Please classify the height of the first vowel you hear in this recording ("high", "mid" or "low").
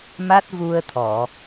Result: low